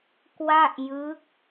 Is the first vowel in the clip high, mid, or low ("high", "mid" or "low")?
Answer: low